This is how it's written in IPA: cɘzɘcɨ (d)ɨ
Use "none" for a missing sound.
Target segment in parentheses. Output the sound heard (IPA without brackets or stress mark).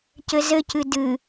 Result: d